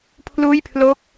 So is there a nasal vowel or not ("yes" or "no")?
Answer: no